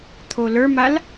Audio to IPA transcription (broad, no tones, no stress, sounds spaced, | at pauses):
t̪ʰ o l ə˞ m a l